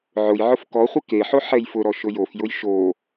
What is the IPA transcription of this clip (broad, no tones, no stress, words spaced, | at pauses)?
ʕʊjʕʊf kɔχʷɪ keħo ħɛjfʊɾɔ ʃʊjofjʊj ʃo